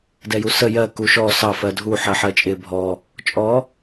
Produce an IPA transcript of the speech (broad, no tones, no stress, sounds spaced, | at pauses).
d ɛ j u s ə j ɜ k u ʃ ɔ s ɑ f ɜ dʱ u ħ ɜ ħ ɜ t͡ʃʼ ɪ bʱ ɔ | t͡ʃʼ ɔ